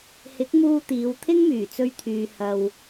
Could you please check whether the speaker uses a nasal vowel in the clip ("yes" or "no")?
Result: no